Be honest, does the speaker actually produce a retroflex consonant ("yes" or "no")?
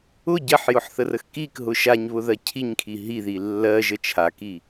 no